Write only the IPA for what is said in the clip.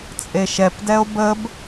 t͡sʼeʃɛpdɛo̯ bəb

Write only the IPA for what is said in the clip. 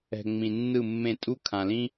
ɛ̤˨ ŋ͡mĩ˨nːɯ˦˨mːẽ˦˨ tʼu˦ kʰã˨lĩ˦

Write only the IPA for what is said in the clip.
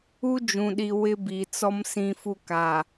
u˦ d͡ʒũ˨ɗi˨ wɪ˦bi˨t͡sɔ˦m sĩ˦fu˦ ka˨

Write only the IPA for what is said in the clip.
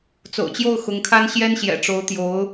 t͡so̰˨˩ʊ̯t͡ɕjo˥˩ʊ̯ xʊ˧˥ŋkʰa˥n ɕjɛ˥nɕjɛ̰˨˩ ʈ͡ʂo˧˥ʊ̯t̪jo˧˥ʊ̯

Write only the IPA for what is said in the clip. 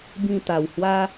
bĩ˥˧ t̪a˨˩whwa˦

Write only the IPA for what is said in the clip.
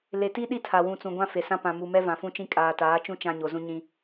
le˨ti˦ɗi˦˨ tʰa˨ wũ˨t͡sũ˨ɡʷã˦ fe˨sã˦ pã˨mu˨mɛ˦ vã˨fũ˦t͡ʃĩ˦ kʼaː˨taː˨˦t͡ʃũ˦ t͡ʃã˦ɲo˨zũ˦ɲĩ˦

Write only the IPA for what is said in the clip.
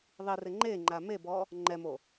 ðˤirɪ ŋ͡ǃeŋ͡ǃa mebɔ | ŋ͡ǃɛmo

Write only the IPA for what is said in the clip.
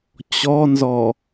t͡ɕɔnzɔ

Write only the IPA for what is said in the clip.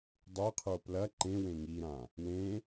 dˤeqʰo plɐ ǃẽ wẽŋiɾã | wẽ

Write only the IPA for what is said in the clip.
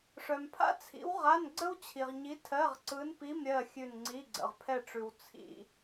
ʂœ˨mpʰa̰˥t͡sʰḭ˧˥wʁa˧˥˧n ɡ͡ǀə˥wt͡ɕʰi˨ʁɲi˧˥ tʰɜ˧˥˧ʁǀɯ˧˥n pi˧˥˧mɾʲɜ˦˨ xʲʉ˦˨nŋ͡ǀi˧˥˧ɡ͡ǀə̰˨ʁ pʰɛ˦˨ʈ͡ʂʉ˨w t͡sʰḭ˨

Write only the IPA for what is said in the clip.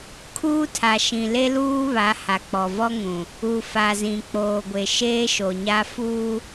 kʰuː˦tʰa˨ʃĩ˨ le˦luː˦ βa˨˦ha˨k͡pɔ˨vɔ˦ ŋũ˨ | u˨fa˨ zĩ˨k͡poː˨ɡʷe˨ ʃeː˦ʃo˨ɲa˦ fuː˦

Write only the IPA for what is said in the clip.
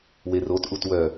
werotʔut wœ

